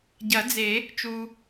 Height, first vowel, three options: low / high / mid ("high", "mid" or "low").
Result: low